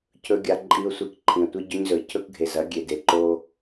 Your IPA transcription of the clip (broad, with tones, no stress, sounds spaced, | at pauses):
cʰ ɵ˦ ɡʲ a˦ ǃʼ i˦ ʊ̯ sʷ e˦ k ǃʰ ĩ˨ ə̯ tʷ i˦ ɟ ɵ˦ ɲ z ɵ˨ ɪ̯ cʰ ɵ˦ k ɡʱ e˨ z ɐ˨˦ ɡʲ e˨ d e˨ ǃ o˦